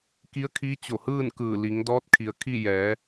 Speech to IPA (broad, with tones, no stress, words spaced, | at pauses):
ki˧˥ə̯kʰi˧˥t͡ɕo˧˩hɯː˥˨n kɯː˧˩li˩˧ŋdɔː˧˥t̚ kʰi˩ə̯kʰi˥˨ jɛː˩˧